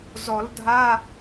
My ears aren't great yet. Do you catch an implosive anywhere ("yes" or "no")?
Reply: no